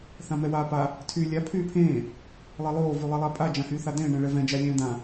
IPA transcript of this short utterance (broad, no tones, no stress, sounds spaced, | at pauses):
θ ã m ɛ w aː p a | tʰ yː lʲ a pʰ yː pʰ ẽː | lˠ ɛ lˠ oː v y lˠ e lˠ a pʼ a d͡ʒ ã h yː θ a d̪ ẽː ɳ ɛ̃ ɭ ɛ v ɛ̃ d͡ʒ a lʲ ɛ̃ː d̪ ã